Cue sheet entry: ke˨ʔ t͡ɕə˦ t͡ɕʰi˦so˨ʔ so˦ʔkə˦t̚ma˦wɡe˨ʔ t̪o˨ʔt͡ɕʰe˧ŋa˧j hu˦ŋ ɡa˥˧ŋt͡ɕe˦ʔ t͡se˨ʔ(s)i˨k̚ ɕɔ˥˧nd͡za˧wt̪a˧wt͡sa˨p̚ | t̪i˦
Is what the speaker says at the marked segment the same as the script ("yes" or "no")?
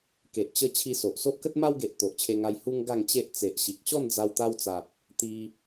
no